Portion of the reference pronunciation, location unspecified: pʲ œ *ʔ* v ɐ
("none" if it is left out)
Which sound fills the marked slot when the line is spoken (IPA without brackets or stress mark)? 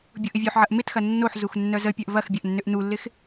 ʔ